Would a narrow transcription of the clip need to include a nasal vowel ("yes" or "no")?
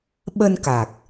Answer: no